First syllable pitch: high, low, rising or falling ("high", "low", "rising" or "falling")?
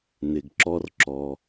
low